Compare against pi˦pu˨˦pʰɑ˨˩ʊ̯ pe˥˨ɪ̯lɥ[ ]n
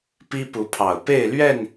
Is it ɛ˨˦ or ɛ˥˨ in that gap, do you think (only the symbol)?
ɛ˥˨